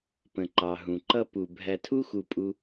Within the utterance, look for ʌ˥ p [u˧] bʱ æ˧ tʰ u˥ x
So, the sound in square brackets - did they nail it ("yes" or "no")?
yes